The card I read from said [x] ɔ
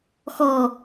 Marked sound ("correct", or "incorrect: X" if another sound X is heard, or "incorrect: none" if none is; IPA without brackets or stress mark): correct